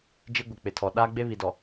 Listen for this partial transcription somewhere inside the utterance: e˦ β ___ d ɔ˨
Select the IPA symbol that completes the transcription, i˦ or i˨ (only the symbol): i˨